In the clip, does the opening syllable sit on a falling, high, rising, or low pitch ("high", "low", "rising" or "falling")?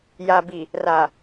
low